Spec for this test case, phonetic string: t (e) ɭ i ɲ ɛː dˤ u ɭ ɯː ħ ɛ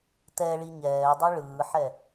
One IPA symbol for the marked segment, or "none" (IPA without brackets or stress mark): ɛ